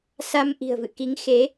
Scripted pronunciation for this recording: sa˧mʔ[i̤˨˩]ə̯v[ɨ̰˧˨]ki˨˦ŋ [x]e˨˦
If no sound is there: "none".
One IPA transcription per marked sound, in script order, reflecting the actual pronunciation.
i̤˨˩, ɨ̰˧˨, x

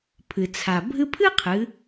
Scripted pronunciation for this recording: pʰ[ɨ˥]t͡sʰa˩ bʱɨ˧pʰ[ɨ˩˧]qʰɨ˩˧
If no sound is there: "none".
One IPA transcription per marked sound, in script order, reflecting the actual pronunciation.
ɨ˩, ɨ˥

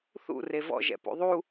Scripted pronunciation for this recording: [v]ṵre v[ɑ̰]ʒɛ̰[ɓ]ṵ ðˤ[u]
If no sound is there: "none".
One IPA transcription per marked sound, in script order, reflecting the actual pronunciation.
θ, ɔ̰, p, u

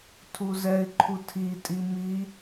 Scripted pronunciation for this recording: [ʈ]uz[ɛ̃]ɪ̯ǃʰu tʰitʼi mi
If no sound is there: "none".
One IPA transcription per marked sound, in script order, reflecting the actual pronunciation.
tʰ, ɛ

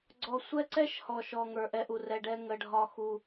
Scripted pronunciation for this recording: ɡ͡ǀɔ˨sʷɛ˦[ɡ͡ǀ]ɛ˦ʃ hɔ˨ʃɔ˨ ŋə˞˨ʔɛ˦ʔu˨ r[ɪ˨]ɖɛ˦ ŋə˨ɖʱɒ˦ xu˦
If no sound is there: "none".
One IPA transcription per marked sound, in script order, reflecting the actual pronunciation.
ǀ, ɛ˨

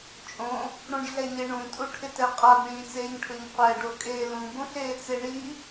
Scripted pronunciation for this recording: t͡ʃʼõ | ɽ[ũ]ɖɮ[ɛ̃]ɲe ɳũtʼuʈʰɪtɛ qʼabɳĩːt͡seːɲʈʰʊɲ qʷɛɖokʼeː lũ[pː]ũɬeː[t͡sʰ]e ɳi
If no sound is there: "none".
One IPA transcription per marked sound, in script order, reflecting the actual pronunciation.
ũ, ɛ, b, t͡s

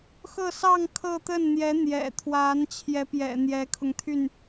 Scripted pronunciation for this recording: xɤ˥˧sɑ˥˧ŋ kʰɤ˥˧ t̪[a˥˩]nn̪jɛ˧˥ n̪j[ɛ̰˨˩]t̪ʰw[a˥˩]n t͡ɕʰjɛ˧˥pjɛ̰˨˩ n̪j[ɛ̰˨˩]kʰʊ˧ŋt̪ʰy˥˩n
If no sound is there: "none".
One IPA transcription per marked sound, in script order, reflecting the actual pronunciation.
ə˥˩, ɛ̰˨˩, a˧˥, ɛ˧˥

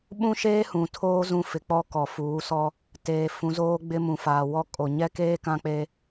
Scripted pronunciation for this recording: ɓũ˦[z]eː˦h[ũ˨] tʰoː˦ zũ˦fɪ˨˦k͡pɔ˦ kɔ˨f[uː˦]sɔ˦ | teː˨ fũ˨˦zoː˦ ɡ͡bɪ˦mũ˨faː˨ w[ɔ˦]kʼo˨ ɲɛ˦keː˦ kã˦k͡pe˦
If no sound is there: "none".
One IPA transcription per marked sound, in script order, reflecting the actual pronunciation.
ʃ, ũ˨, uː˨˦, ɔ˦

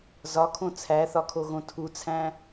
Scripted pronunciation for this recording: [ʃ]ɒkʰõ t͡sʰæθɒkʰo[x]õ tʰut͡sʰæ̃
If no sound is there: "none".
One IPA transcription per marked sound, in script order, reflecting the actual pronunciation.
z, ɣ

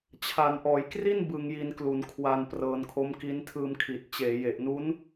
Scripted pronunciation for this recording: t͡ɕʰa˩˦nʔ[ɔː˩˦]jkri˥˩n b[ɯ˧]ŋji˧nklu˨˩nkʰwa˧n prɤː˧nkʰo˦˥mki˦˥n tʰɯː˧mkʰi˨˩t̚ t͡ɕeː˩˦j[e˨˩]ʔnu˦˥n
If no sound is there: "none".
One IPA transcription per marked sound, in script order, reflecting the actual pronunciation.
ɔː˩˦, ɯ˧, e˨˩

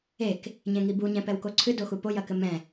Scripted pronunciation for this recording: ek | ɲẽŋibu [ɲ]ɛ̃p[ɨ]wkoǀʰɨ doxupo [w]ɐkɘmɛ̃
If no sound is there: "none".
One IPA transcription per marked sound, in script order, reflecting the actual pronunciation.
ɲ, ɛ, j

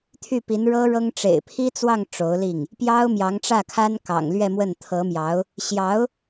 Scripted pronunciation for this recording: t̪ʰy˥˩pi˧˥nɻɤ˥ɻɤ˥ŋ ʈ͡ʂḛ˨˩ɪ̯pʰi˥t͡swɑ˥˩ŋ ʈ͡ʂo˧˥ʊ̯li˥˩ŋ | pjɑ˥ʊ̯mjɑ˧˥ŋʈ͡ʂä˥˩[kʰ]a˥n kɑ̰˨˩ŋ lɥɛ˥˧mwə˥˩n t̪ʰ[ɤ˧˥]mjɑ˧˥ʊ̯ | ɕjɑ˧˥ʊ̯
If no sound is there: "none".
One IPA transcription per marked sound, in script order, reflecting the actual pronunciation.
kʰ, ɤ˧˥

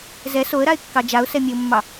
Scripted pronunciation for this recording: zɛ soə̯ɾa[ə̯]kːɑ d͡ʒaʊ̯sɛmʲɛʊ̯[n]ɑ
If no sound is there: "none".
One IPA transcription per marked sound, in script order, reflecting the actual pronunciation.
ɪ̯, mː

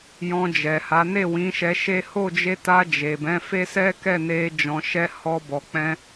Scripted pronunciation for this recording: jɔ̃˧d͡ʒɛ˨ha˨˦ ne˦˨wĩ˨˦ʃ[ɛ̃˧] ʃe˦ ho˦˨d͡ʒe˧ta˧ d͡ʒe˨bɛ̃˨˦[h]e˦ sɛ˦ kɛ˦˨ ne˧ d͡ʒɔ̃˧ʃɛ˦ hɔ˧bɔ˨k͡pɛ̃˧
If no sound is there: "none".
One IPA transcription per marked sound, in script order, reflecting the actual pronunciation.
ɛ˧, f

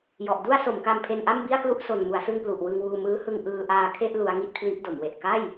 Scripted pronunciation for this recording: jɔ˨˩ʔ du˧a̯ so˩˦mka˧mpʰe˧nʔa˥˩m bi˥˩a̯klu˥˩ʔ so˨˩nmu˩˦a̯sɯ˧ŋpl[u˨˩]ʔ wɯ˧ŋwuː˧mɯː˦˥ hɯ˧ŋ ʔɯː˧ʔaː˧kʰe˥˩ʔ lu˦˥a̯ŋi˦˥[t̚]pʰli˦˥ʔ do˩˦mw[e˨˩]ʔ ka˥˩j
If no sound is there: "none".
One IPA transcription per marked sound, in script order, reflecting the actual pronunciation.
u˨˩, t̚, e˨˩

